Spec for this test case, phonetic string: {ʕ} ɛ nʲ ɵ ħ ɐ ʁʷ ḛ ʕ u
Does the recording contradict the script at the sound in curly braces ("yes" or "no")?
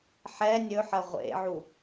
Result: yes